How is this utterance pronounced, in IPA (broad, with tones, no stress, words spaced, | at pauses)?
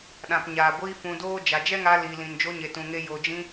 ɗã˨pɲaː˨ɡʷiː˧ fũ˧doː˦ d͡ʒa˨d͡ʒɛ˦ŋa˧ liː˨lĩ˨nd͡ʒo˧ ɲe˧tũ˧ŋe˦ jo˨d͡ʒĩ˧